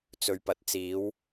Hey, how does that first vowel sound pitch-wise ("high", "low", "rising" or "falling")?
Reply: low